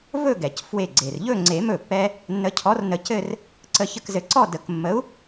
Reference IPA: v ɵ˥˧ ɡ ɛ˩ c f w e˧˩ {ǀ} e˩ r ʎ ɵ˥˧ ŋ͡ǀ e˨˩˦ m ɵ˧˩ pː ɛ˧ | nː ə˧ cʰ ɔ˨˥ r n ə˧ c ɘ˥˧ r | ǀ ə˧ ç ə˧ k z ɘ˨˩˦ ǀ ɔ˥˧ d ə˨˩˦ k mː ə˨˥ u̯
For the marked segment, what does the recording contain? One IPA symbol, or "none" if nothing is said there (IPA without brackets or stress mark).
ɡ͡ǀ